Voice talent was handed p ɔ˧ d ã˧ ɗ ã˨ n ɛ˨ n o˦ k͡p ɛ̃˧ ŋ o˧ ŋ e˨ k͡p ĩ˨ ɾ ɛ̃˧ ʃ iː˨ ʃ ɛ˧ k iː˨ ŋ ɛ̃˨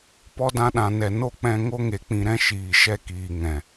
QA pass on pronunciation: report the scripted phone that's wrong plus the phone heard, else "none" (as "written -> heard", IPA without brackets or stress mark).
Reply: none